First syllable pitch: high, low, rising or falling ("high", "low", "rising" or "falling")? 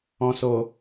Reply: low